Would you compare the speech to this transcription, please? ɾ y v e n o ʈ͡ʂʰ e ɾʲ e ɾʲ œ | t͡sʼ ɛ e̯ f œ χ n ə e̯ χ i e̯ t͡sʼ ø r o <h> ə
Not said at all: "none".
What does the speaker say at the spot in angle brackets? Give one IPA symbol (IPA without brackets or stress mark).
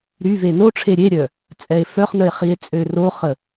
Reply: χ